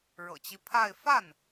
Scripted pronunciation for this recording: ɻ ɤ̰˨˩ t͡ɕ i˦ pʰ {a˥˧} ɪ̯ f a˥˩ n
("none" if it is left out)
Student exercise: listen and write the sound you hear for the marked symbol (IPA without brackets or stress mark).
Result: a˥˧